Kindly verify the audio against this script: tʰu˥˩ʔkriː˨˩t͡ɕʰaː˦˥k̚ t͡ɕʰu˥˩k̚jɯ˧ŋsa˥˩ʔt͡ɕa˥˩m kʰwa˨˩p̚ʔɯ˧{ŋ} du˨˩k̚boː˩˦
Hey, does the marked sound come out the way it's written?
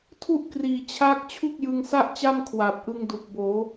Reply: yes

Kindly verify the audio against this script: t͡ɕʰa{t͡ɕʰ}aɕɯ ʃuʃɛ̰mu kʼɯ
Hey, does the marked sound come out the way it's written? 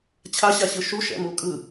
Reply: no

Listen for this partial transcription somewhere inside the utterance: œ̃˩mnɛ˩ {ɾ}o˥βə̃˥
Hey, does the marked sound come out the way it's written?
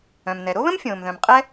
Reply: yes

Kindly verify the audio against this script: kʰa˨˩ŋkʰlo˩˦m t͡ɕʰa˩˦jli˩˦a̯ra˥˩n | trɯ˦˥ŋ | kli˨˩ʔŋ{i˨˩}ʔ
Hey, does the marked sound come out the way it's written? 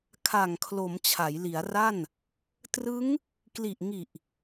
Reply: yes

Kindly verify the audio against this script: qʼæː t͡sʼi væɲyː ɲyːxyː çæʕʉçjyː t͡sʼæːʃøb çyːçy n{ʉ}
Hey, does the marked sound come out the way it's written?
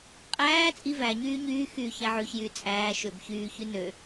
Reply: no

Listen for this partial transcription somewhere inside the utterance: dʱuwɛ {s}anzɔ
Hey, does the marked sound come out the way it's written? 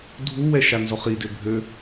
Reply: no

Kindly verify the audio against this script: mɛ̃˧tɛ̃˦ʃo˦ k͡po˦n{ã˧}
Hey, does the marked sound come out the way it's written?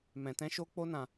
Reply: yes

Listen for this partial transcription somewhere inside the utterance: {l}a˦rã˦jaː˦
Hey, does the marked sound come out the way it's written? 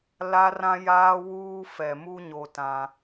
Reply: yes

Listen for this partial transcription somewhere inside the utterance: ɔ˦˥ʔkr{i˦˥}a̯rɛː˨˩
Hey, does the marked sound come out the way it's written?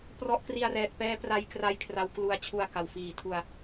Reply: no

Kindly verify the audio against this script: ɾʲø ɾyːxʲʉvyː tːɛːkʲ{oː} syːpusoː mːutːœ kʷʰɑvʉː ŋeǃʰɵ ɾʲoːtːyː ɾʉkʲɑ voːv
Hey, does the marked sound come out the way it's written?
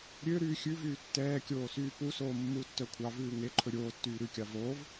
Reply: yes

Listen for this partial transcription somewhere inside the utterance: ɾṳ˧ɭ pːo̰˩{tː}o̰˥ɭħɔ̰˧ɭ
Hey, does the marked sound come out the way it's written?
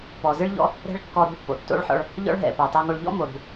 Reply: yes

